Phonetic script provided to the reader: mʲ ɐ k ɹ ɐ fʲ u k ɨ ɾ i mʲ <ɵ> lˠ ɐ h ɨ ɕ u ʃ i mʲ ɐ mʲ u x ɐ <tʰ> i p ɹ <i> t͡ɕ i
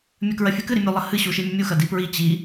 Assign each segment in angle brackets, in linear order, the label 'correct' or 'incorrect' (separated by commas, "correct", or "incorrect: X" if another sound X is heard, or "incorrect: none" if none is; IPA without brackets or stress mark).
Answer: correct, incorrect: d, correct